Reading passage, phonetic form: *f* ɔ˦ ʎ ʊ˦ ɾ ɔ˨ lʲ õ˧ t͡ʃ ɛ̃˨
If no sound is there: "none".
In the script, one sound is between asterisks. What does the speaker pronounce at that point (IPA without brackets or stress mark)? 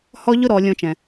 h